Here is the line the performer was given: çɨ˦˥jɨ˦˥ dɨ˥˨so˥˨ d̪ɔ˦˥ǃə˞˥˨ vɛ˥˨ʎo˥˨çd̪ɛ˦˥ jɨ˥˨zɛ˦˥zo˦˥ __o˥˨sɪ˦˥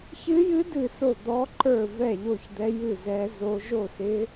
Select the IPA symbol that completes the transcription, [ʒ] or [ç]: ʒ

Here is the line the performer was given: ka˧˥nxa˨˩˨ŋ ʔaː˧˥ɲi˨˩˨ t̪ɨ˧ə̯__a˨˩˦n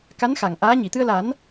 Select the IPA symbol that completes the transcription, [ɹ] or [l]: l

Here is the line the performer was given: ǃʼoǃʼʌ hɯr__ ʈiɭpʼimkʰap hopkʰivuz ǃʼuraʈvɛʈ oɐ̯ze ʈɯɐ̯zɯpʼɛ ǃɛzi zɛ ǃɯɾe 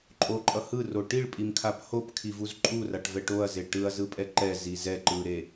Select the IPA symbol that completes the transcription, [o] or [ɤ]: o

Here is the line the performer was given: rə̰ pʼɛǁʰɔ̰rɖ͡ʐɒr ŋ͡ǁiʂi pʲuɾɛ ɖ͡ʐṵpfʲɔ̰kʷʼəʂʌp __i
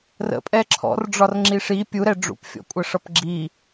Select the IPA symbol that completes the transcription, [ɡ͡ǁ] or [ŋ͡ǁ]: ɡ͡ǁ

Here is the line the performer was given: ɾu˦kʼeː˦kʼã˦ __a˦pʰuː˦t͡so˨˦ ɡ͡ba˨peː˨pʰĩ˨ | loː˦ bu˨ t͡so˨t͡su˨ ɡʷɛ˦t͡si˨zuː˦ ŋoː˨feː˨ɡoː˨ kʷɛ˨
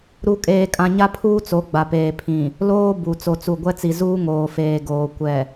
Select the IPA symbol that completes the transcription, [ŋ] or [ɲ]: ɲ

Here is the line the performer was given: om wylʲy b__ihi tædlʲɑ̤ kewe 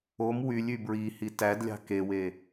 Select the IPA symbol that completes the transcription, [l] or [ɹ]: ɹ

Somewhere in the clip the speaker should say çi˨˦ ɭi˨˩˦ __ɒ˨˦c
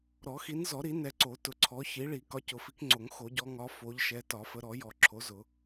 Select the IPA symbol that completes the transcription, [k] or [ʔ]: k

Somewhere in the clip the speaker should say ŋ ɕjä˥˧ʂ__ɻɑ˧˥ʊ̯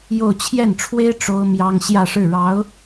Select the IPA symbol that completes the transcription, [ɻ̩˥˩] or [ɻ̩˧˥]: ɻ̩˥˩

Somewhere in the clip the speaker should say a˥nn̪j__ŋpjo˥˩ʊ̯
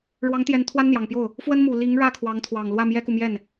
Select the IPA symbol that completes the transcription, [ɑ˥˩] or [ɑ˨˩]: ɑ˨˩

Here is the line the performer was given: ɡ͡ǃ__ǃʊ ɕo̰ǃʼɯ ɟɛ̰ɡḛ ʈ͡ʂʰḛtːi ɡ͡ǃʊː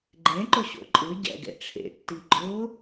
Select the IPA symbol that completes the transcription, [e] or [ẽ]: ẽ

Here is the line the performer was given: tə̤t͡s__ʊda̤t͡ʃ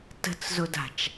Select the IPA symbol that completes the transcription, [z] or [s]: z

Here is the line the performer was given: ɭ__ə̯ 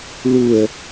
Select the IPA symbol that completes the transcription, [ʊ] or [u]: u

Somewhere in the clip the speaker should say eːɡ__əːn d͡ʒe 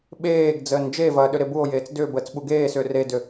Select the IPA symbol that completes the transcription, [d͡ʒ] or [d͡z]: d͡z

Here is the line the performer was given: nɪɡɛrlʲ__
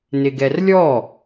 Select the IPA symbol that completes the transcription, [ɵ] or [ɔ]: ɔ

